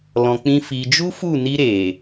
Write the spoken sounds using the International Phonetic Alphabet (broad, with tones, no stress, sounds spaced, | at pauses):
l ɔ̃˧ k͡p ĩ˦ f i˧ d͡ʒ u˦ f u˦˨ n i˧ ɾ e˨